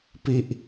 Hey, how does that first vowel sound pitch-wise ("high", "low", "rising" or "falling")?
low